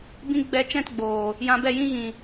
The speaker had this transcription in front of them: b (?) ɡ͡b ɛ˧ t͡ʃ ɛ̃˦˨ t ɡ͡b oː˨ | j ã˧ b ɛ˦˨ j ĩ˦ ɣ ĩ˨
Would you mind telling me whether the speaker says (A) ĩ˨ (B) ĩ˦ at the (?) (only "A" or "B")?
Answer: B